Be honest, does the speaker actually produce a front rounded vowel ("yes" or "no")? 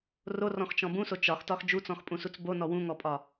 no